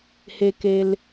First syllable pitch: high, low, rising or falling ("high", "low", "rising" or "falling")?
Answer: low